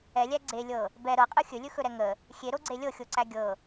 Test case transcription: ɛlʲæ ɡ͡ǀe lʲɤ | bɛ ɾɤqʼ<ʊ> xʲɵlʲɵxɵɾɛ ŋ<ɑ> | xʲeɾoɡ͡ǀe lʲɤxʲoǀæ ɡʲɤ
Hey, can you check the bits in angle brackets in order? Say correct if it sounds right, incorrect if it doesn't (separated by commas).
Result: incorrect, incorrect